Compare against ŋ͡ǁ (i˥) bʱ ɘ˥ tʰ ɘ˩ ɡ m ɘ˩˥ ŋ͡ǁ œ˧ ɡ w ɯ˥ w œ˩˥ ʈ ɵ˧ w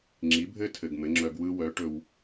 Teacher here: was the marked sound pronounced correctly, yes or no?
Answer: no